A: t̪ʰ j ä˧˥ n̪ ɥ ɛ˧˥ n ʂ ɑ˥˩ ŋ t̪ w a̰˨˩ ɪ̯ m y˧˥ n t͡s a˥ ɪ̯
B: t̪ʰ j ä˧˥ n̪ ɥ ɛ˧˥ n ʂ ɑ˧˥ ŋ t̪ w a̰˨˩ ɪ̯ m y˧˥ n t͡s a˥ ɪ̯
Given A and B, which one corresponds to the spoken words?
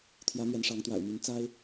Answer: B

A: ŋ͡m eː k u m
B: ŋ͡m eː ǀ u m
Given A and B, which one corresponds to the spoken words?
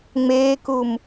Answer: A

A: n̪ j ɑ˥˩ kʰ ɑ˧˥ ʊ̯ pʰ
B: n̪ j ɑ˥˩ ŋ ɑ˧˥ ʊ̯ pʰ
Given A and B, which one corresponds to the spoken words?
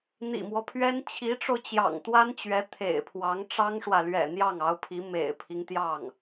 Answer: B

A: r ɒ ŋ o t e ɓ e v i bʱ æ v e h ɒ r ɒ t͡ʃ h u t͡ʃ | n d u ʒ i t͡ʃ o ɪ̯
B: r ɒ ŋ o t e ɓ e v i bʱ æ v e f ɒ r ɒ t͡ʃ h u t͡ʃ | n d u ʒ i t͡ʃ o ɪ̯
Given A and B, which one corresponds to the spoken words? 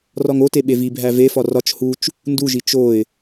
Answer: B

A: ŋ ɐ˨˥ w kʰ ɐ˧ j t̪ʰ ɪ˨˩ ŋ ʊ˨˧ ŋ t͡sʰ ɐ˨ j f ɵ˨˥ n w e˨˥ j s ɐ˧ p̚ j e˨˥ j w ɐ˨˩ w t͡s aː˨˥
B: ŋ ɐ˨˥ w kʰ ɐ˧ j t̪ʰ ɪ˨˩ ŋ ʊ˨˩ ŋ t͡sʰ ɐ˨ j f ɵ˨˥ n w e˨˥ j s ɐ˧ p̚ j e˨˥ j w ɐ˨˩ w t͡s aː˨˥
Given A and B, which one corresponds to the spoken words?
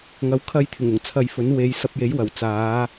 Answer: B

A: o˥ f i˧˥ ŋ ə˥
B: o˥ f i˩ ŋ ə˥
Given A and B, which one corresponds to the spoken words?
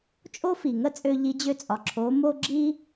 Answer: B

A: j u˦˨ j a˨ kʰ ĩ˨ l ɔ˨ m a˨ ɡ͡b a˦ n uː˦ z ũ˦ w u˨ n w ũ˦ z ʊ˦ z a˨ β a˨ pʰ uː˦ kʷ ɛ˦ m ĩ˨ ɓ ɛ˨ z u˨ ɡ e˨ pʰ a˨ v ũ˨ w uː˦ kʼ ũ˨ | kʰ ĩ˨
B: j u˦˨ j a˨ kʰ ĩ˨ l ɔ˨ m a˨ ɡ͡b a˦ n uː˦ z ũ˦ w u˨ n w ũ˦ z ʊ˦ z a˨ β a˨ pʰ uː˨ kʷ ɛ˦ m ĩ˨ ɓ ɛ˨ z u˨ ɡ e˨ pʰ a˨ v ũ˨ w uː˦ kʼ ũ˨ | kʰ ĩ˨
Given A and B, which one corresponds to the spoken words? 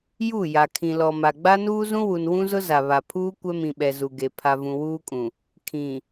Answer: A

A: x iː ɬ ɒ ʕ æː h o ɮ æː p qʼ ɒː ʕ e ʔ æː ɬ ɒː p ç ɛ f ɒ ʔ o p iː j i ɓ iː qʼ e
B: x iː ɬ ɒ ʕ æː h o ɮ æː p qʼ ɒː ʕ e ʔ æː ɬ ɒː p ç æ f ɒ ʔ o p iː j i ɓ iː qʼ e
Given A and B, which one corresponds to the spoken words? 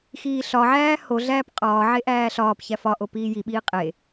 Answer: B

